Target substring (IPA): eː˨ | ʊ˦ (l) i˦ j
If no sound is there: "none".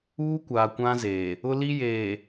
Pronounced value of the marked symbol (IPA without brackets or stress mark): l